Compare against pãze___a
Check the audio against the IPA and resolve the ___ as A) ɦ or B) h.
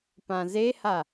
B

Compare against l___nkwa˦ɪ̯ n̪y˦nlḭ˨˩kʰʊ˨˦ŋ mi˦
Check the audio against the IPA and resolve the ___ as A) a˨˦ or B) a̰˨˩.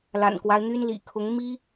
B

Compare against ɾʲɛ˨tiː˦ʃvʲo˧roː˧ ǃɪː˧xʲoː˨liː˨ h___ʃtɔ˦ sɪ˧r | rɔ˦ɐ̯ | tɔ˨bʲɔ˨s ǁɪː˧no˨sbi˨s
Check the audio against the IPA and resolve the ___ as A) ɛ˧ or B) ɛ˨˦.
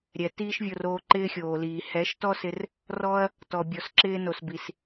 B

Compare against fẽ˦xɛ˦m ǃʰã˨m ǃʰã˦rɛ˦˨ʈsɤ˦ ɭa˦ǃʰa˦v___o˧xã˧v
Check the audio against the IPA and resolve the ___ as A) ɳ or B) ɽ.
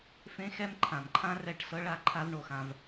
A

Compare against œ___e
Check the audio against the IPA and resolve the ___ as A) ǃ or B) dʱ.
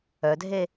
B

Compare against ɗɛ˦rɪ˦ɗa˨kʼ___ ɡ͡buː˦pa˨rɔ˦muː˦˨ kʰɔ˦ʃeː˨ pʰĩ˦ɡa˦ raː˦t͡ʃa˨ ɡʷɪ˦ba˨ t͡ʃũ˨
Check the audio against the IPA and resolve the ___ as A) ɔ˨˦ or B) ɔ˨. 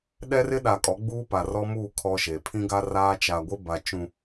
A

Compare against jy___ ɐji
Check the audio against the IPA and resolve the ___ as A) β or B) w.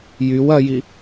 B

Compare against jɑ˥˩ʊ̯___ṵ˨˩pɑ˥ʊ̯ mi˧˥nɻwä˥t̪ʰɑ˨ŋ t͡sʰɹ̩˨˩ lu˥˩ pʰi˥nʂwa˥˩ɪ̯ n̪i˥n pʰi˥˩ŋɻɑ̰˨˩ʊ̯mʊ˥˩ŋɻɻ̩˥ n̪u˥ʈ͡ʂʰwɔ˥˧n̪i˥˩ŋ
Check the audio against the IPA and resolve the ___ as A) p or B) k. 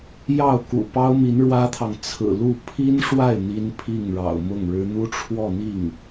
B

